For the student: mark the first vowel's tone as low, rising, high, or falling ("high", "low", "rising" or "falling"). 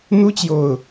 high